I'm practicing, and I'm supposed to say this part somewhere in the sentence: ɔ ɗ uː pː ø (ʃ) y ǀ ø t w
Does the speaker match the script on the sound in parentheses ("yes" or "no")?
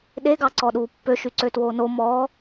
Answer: yes